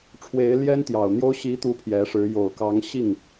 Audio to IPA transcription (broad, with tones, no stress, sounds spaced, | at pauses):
ʈ͡ʂʰ w e˧˥ ɪ̯ l j ɛ˥ n t̪ j ɑ˨˩ ʊ̯ n̪ j o˥ ʊ̯ ɕ i˧˥ t̪ u˧˥ pʰ j ɛ˧˥ ʂ ɻ̩˧˥ j o˨˩ ʊ̯ k ɑ˧˥ ŋ ɕ i˥˩ ŋ